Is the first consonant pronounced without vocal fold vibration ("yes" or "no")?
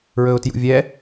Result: no